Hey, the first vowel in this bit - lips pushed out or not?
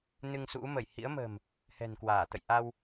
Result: no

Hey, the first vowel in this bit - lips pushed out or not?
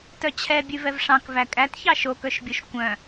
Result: yes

